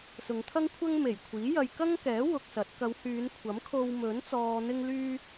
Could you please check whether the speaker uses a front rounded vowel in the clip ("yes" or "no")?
yes